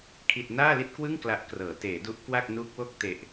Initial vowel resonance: oral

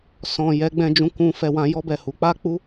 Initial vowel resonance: nasal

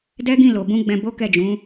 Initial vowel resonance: oral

